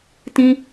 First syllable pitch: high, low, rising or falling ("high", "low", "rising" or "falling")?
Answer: high